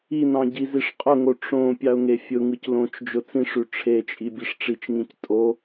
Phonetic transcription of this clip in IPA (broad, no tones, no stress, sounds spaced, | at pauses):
i n ɑ̃ ɟ i z i ʂ qʼ ʊ ŋ o ʈ͡ʂ õ pʲ ɑ ʊ̯ ŋ e fʲ ʊ ŋ ɯ c l õ t͡ʃ d͡ʒ ʊ t͡s ĩ ʂ ʉ ʈ͡ʂʰ e t͡ʃʼ i bʲ e ʂ ʈ͡ʂ i t͡ʃ ŋ ĩ c tʼ o